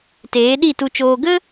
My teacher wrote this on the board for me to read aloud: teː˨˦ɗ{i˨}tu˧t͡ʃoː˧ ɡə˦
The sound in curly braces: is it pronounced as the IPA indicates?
no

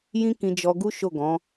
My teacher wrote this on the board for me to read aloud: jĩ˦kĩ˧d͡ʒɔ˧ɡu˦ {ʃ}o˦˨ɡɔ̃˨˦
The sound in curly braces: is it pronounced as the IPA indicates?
yes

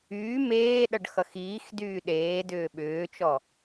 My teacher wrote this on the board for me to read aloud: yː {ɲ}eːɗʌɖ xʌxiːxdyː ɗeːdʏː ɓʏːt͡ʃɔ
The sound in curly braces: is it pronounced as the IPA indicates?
no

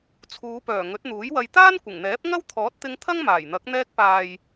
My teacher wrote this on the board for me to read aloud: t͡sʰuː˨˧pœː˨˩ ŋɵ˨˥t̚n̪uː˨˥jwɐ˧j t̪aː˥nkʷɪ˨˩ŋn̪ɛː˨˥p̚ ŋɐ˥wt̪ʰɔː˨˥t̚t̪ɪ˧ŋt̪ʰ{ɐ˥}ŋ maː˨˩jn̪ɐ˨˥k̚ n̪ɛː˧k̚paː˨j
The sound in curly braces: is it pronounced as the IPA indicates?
yes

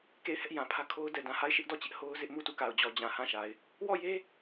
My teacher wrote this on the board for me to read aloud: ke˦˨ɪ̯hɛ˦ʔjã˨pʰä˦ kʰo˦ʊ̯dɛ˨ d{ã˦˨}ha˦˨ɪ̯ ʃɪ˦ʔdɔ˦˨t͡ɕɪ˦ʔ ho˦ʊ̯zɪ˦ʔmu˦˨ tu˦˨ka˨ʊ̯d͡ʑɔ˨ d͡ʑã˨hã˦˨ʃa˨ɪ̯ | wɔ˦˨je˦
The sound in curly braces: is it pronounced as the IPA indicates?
no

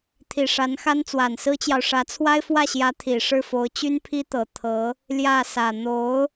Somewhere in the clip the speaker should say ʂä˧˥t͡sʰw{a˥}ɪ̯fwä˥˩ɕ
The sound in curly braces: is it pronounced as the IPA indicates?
yes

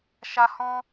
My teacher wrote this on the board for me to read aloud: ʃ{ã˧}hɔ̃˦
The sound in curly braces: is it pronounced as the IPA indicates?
no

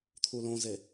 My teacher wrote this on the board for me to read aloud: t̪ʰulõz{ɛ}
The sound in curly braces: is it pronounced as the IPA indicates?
no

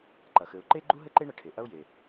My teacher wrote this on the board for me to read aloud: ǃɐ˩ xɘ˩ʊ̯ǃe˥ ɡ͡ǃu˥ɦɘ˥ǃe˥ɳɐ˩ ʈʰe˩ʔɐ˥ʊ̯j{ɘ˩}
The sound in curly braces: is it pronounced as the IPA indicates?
no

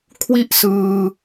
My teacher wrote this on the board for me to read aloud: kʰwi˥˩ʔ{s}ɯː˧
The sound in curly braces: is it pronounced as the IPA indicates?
yes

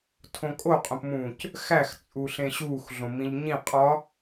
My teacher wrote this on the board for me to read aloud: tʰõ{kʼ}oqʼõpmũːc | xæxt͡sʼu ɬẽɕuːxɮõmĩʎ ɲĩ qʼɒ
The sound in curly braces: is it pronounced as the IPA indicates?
yes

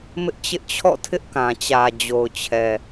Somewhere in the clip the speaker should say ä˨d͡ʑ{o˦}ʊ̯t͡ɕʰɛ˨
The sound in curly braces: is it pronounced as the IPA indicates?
no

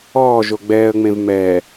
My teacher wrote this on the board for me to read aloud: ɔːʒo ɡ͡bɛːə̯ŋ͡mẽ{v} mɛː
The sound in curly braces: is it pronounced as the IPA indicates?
yes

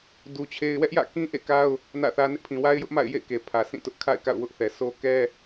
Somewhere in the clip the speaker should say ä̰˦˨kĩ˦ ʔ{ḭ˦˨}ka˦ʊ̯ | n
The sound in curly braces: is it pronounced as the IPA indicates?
no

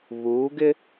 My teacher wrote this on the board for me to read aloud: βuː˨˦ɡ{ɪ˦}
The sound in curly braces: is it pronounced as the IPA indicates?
yes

